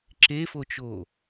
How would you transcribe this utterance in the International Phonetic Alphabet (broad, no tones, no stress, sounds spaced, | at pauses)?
ǁ e f o t͡ʃ o